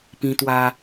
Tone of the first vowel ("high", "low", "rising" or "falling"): high